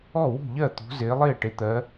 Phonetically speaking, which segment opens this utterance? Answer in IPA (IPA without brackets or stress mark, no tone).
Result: ɔ